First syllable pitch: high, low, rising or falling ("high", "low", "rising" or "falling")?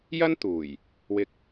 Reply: high